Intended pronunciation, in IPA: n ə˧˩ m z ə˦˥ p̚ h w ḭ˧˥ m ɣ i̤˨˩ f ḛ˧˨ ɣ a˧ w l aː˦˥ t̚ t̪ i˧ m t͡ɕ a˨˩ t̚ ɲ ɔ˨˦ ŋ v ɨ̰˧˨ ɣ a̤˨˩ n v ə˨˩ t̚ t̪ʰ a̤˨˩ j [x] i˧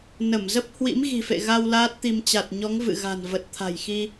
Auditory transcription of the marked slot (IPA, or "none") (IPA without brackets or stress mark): x